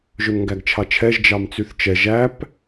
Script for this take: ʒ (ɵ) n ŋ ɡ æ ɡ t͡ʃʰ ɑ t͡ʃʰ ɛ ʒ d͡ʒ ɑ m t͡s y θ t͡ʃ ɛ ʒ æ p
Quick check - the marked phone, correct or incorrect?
correct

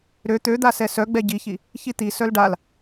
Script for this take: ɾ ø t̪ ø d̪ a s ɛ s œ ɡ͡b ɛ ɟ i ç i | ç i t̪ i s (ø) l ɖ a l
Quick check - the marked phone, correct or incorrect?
incorrect: œ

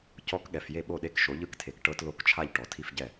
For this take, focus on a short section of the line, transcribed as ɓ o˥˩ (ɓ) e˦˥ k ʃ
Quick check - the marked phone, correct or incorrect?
incorrect: ɗ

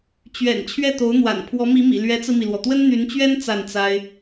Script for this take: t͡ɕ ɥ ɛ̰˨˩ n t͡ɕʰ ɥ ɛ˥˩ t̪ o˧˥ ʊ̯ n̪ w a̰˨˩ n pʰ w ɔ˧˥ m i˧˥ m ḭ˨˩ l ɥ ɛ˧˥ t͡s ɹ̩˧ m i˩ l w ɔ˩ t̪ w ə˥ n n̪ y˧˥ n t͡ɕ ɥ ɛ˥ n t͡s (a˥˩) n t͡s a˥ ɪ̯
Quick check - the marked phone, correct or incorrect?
correct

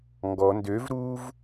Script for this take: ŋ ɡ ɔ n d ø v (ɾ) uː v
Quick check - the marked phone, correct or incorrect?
correct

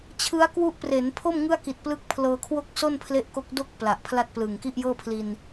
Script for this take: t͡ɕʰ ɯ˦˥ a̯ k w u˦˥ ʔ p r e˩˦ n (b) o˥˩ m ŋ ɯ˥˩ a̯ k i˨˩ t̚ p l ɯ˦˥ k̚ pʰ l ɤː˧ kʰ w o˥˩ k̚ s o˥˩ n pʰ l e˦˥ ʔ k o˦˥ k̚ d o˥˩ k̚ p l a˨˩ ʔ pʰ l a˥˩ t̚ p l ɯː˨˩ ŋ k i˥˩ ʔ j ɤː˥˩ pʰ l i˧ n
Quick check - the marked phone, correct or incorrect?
incorrect: pʰ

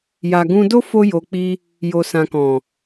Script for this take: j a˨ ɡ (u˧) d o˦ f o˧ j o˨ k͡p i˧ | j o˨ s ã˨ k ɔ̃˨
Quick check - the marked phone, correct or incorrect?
incorrect: ũ˧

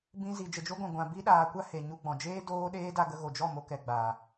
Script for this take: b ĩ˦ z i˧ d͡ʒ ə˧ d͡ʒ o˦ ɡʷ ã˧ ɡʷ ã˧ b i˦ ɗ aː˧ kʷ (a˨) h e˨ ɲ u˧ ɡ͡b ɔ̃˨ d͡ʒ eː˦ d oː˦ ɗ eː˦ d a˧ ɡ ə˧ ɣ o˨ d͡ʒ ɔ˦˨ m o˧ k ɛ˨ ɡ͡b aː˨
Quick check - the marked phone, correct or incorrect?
incorrect: a˦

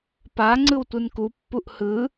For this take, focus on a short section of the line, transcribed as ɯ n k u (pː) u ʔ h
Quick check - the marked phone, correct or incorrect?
correct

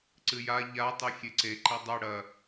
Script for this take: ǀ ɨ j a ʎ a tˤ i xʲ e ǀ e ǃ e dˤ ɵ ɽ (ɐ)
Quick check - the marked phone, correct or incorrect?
correct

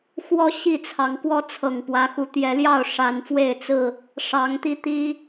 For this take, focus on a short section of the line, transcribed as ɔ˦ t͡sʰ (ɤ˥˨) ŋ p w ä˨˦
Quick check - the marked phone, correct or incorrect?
incorrect: ɤ˨˩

